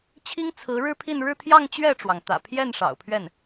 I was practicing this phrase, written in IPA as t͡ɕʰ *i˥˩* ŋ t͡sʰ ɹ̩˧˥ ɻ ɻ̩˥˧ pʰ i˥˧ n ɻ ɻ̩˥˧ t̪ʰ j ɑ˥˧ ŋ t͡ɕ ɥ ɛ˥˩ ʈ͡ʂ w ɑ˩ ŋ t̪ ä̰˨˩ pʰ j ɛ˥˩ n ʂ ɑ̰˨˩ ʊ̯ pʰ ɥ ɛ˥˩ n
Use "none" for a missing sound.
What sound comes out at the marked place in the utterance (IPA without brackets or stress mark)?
i˥